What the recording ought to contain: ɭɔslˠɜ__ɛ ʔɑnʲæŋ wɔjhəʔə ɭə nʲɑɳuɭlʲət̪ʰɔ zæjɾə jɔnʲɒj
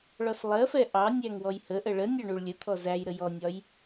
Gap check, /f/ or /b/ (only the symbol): f